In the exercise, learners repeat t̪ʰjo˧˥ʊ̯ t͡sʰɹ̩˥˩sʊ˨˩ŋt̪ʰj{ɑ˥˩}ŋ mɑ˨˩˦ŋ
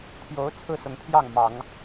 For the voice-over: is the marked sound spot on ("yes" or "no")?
yes